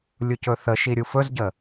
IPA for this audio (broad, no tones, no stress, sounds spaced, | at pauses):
lʲ u c ɵ θ ə ʃ i ɾʲ u f ɵ z ɟ ə